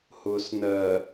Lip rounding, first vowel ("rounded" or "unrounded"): rounded